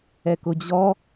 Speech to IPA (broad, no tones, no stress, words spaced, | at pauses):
ɛkʊd͡ʑɔ